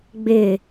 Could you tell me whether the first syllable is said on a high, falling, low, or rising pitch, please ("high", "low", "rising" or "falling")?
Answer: falling